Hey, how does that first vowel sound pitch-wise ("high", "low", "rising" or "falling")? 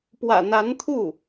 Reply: low